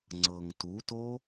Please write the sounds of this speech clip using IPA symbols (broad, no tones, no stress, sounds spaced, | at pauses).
ŋ͡ǀ ɤ ŋ t u t o